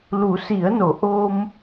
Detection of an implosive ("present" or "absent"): absent